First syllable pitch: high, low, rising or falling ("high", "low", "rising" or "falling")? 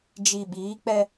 low